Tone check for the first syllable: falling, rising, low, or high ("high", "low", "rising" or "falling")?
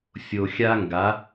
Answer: low